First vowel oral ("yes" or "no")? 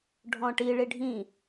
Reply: no